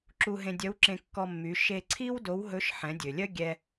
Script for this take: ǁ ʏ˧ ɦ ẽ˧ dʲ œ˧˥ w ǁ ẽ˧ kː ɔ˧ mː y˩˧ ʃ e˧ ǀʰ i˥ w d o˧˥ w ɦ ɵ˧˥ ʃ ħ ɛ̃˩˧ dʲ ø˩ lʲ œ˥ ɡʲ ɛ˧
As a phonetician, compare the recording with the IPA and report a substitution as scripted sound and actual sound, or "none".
ʏ˧ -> u˧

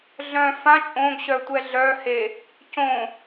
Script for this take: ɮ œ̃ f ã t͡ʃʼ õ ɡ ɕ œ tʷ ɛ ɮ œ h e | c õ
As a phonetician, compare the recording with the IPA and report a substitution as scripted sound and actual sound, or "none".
none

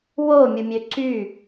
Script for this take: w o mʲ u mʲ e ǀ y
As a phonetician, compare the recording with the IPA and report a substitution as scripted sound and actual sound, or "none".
e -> ø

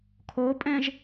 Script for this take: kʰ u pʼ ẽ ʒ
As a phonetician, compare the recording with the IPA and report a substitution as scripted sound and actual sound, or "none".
u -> o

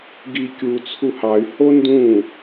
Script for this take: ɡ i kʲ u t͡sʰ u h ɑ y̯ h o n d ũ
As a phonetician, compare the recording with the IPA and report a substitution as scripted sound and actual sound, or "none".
none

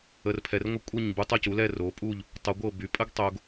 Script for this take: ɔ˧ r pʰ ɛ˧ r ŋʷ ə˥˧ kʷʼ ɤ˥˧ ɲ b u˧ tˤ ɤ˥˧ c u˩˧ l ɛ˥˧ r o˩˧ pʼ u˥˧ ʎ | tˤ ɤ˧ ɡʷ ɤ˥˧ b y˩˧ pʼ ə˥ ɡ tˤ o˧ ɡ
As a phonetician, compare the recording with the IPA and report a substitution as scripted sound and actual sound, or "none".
ɔ˧ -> ə˧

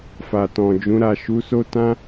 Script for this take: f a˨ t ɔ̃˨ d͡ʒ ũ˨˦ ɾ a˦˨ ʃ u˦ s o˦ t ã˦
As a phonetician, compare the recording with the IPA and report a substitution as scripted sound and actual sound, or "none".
u˦ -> u˨˦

